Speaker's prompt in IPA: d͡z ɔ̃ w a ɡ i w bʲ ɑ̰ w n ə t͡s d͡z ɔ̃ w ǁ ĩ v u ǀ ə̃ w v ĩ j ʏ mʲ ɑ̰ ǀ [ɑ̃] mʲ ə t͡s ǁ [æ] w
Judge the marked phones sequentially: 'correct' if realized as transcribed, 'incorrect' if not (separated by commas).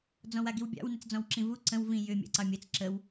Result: incorrect, incorrect